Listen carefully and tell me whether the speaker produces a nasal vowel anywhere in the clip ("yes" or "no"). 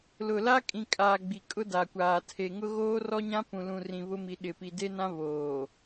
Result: yes